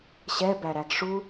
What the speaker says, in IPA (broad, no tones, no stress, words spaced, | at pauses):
ɕɛbæɾæɡ ʂu